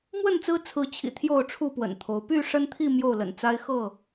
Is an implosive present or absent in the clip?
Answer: absent